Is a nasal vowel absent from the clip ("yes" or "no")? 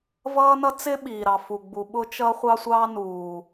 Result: yes